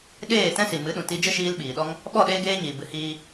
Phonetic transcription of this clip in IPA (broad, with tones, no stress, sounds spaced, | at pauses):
ɗ eː˦˨ t ɛ̃˦ s i˨ m ɨ˨˦ ɗ ũ˨ t i˧ d͡ʒ ə˦ ʃ iː˧ l ɓ iː˨ ɗ ɔ˦ ŋ | ɓ ɔ˦˨ ɗ eː˦ ɡ eː˦ ɲ iː˨ b ɨ˧ h iː˦